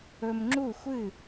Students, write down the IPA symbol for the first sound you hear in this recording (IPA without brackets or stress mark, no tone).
ɵ